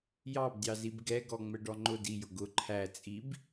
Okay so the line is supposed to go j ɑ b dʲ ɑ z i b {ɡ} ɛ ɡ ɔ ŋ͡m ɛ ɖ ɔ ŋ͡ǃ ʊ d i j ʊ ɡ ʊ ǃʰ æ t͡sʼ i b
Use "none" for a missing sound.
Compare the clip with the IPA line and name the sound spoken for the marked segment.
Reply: ɡ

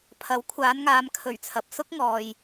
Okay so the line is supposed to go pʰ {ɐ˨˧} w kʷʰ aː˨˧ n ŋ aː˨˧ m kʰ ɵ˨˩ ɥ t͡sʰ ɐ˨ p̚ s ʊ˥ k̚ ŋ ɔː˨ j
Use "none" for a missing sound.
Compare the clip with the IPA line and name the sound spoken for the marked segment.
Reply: ɐ˨˥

